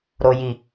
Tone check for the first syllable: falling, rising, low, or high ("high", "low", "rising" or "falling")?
low